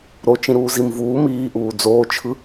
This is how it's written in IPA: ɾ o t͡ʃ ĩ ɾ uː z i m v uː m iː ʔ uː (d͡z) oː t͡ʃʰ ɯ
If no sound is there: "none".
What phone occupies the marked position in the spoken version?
d͡z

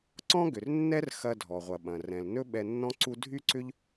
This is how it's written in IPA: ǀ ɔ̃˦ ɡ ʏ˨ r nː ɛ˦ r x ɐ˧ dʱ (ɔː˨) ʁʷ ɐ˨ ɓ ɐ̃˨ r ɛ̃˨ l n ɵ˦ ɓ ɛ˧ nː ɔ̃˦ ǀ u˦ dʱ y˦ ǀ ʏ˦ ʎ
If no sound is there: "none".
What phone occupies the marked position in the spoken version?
ɔ˨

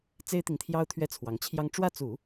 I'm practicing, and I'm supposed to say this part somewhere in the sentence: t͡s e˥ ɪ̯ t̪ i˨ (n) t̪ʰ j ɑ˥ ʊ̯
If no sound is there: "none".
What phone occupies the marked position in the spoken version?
ŋ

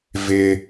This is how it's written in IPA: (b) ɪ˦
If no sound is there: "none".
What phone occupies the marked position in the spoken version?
v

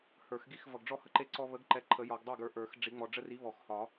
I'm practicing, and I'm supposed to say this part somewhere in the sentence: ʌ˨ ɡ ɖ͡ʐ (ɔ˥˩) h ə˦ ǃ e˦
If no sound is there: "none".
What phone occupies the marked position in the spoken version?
ɔ˥˩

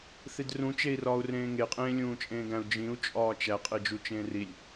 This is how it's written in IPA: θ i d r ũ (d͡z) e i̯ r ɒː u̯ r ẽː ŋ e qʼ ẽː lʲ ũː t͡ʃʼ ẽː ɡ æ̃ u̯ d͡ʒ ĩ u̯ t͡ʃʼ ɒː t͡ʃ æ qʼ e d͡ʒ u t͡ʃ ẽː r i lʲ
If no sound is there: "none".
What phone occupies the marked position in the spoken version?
t͡ʃ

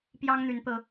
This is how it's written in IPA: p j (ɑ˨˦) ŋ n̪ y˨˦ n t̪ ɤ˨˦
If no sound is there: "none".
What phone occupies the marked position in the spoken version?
ɑ˦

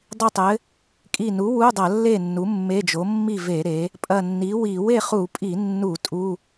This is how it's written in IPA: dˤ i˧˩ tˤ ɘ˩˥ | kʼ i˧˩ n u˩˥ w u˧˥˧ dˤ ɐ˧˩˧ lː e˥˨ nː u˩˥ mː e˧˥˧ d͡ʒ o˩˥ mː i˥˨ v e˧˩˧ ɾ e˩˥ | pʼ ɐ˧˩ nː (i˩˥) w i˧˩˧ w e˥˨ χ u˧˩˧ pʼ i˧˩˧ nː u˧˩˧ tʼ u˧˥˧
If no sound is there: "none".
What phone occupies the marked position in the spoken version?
i˩˥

